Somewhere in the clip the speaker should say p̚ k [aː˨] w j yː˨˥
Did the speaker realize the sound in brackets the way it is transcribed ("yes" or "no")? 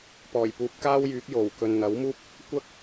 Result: no